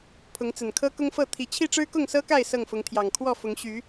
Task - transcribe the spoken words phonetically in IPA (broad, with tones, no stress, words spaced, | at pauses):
pʰʊ˨˦ŋt͡sə˨˩n kʰɤ˦kʊ˦ŋfɤ˥˨ t̪ʰi˨˩t͡ɕʰi˥˨ ʈ͡ʂɻ̩˦kʊ˥˨ŋsɤ˦ka˥˨ɪ̯ sɤ˥˨ŋfʊ˨˦ŋt̪ʰjɑ˨˩ŋ kʰwɔ˥˨fʊ˨˦ŋ ɕy˨˦